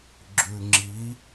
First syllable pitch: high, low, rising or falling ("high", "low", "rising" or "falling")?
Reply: low